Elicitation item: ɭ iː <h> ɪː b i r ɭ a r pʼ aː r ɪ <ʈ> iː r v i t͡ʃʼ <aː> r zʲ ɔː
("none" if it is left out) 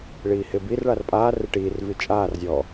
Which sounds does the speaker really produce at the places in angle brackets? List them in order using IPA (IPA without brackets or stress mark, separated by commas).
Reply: h, ʈ, aː